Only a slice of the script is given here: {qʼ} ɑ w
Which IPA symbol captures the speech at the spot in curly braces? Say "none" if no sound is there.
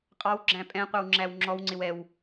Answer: qʼ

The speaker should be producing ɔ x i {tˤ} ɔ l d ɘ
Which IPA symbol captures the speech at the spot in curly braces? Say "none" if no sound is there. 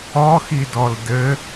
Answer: d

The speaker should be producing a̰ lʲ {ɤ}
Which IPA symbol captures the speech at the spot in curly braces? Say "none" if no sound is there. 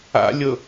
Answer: ɤ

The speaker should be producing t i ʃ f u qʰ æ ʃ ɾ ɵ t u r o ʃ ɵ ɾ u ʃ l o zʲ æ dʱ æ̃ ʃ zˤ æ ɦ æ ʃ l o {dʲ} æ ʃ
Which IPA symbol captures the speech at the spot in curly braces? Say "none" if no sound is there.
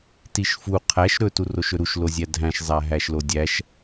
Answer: dʲ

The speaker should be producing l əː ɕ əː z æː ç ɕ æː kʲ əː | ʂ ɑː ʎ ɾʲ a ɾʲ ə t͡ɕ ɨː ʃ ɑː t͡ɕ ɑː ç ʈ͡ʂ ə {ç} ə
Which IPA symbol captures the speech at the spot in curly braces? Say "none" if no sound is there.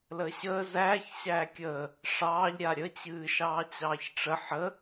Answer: ħ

